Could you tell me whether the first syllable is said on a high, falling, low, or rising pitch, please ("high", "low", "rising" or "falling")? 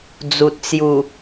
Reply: low